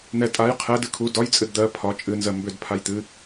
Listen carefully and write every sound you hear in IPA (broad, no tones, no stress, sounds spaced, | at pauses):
n̪ ɛ tʼ a j qʰ ɛ d ɨ kʰ u d ɒ j t͡sʼ ɨ d d̪ ɜ pʰ ɒ t͡ʃʼ ɨ n z ɜ m b ʏ d pʰ a j t̪ ɨ